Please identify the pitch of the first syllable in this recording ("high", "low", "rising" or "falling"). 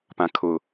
low